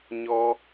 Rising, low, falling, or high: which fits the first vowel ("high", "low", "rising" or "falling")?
high